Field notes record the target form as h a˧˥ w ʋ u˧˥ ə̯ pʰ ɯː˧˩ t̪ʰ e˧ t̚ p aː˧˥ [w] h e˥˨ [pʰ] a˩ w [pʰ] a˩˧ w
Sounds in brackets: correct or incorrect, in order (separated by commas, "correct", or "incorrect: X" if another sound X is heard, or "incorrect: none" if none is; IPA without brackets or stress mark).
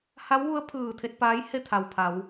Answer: incorrect: j, incorrect: t̪ʰ, correct